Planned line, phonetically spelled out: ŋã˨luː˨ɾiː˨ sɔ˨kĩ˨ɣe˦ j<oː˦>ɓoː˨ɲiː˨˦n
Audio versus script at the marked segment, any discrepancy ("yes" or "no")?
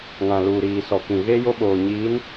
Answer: yes